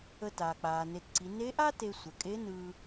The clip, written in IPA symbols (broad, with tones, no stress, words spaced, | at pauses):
ə˧taː˩ k͡paː˩ne˩˧tǀi˩˧ ne˧˥ʔa˥ te˧sʷə˩˧kʼe˧˥nɯː˧